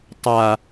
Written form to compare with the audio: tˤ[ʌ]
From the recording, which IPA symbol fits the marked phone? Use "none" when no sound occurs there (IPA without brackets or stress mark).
a